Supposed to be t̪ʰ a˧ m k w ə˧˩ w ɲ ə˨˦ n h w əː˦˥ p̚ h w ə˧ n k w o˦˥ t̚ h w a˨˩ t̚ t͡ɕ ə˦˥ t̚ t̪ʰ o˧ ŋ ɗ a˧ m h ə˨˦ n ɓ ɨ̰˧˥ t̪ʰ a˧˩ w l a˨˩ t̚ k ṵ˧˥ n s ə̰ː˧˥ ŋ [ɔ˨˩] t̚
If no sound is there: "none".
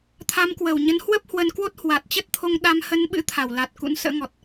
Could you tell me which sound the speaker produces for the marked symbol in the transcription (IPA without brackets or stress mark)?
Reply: ɔ˨˩